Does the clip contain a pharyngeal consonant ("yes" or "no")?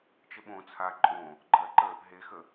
no